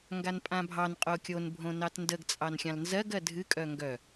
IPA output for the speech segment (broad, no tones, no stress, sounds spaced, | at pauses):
ŋ ɡ a n pʼ ã bʱ ɑ n qʼ o kʲ o n bʱ õ n ɑ t n d ə ɡ t͡sʼ ɑ n xʲ ɑ̃ l n z ɜ ɡ ɜ dʱ ɨ kʼ œ ŋ ɡ œ